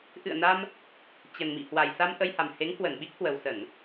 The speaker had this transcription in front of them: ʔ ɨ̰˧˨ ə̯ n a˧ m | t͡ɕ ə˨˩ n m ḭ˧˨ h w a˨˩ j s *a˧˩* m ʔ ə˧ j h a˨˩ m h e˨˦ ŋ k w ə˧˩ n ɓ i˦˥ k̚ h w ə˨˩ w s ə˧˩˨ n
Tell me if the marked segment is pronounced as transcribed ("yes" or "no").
no